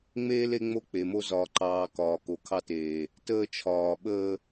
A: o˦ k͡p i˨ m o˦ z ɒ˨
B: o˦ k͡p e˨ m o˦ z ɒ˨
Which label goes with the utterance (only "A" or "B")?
B